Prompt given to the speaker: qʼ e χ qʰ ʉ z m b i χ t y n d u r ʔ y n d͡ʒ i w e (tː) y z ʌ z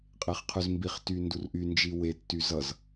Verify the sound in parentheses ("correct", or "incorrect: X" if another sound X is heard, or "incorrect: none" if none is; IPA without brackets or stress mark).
correct